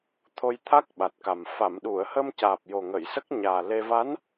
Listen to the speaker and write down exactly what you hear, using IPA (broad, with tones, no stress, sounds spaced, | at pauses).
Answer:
t̪ʰ o˧ j t̪ʰ a˦˥ k̚ ɓ a˨˩ t̚ k a˨˩ m f a˨˩˨ m ɗ u˨˩˨ ə̯ h ə˧ m c aː˨˩ p̚ j o˨˩ ŋ ə˨˩˨ j s ə˦˥ k̚ ɲ aː˨˩ l e˧ v a˧˥ n